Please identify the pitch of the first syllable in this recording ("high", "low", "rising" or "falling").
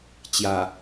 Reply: low